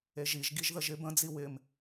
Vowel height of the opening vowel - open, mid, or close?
mid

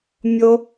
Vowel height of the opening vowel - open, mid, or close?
mid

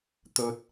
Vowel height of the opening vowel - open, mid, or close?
mid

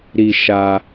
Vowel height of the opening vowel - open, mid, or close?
close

